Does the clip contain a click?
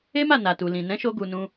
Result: no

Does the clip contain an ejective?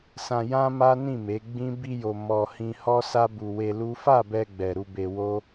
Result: no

